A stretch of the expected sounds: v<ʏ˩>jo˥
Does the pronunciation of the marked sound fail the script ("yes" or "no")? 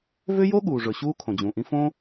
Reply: yes